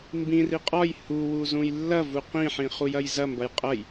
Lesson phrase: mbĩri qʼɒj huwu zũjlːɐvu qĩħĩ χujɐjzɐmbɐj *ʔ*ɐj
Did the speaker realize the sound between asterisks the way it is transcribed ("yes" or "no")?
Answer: no